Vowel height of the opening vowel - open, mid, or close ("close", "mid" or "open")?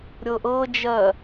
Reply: mid